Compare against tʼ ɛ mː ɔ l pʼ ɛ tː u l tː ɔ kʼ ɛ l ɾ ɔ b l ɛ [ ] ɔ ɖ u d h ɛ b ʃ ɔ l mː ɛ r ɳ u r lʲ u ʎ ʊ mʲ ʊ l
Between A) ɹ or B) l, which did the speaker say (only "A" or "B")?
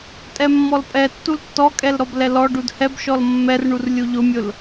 B